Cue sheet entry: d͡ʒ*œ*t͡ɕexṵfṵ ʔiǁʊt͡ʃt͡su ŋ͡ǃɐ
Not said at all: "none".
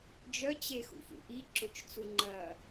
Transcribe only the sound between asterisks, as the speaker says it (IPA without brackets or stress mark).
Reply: œ